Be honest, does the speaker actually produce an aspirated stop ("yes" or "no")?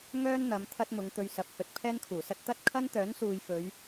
yes